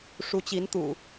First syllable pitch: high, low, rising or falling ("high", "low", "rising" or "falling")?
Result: rising